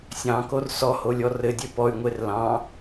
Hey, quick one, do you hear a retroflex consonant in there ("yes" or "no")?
no